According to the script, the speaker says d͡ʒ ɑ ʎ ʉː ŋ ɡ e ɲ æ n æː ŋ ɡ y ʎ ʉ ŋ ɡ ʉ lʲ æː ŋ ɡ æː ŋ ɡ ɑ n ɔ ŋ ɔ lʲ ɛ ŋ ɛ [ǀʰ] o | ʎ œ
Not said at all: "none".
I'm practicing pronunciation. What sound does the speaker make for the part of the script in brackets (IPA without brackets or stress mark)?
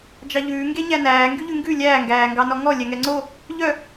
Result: ŋ͡ǀ